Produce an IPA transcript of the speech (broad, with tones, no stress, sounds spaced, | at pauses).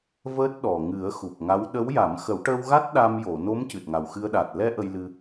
v əː˦˥ t̚ ɗ ɔ˨˩ ŋ ɨ˨˩˦ ə̯ x u˨˩ p̚ ŋ a˧˥ w ɗ ə˧˥ w j a˨˩˦ m x ə˨˩˦ w ʈ əː˧ w ɣ a˦˥ t̚ ɗ a˧ m j o˨˩˨ n o˧˥ m c ɨ˨˩ t̚ ŋ a˨˩ w x ɨ˧ ə̯ ɗ a˨˩ t̚ l ɛ˧ ʔ ə˧ j l ɨ˧